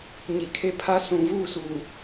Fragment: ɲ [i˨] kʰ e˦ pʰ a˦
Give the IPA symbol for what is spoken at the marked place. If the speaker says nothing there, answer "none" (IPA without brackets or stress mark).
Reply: i˨